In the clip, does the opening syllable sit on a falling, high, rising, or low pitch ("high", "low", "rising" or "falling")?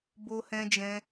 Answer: high